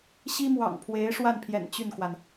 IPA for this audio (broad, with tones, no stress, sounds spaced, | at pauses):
ɕ i˥ m w ɑ̰˨˩ ŋ pʰ w e˧˥ ɪ̯ ʂ w a˥˩ n pʰ j ɛ̰˨˩ n t͡ɕ y˥˩ n k w a˩ n